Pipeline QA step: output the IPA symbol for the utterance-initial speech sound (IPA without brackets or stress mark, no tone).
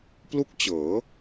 p